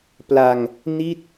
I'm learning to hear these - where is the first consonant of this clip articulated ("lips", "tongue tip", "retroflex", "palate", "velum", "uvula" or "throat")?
lips